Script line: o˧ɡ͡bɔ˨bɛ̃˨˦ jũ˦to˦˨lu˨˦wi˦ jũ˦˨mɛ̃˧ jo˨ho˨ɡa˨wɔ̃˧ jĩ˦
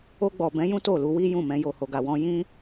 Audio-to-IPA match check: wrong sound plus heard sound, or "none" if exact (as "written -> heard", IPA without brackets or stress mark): none